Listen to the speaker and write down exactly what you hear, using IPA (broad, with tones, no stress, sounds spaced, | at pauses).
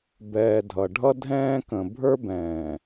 b ɛː˨ dʱ ʌ˨ ɖʱ ʌ˦ dʱ ɛ̃ː˦ k ə̃˨ bʱ ə˞˦ b ɛ̃ː˨